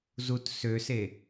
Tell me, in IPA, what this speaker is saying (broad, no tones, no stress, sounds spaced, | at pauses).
z u t s ø s e